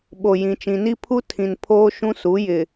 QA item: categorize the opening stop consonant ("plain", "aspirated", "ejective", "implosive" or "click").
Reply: implosive